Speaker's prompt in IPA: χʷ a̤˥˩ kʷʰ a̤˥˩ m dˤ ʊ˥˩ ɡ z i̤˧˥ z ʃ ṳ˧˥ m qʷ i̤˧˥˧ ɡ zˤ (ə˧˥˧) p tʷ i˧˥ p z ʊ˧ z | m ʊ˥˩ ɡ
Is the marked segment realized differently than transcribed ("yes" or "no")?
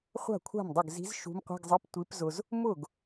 yes